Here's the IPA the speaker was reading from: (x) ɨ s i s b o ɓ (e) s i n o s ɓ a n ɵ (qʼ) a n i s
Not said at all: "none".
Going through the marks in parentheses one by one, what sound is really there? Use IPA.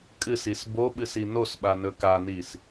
kʼ, ɨ, k

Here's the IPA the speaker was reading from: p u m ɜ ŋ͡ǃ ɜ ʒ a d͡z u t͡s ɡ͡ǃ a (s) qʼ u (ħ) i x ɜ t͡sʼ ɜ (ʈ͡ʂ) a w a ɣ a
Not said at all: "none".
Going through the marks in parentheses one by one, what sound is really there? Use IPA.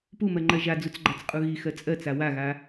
t͡s, ɣ, t͡s

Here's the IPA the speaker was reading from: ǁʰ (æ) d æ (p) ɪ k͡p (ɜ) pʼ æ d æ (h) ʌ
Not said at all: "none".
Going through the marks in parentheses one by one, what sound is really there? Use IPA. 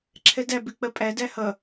ɛ, b, ɜ, h

